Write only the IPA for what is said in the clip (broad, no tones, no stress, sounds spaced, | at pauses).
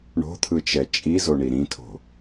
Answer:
ɳ o̤ t̪ʰ ɯ t͡ʃ ɛ t͡ʃʼ i z o ɳ i ɾ ĩ tʰ o̤